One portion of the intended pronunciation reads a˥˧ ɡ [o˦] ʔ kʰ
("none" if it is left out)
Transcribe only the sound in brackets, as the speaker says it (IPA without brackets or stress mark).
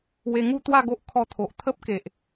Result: o˦